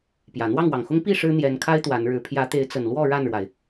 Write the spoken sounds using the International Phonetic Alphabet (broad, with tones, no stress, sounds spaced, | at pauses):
p j ä˨˩ n̪ w ɑ˥˨ ŋ w ɑ˨˩ ŋ x ʊ˦ ŋ p i˥˨ ʂ ɻ̩˦ n̪ j ɛ˨˦ n kʰ a˦ ɪ̯ t̪ w a˨˦ n ɻ ɻ̩˨˦ pʰ j ä˨˦ t̪ e˨˦ ɪ̯ t͡s ə˨˩ n l w ɔ˥˨ ɻ a˥˨ n ɻ w a˩ ɪ̯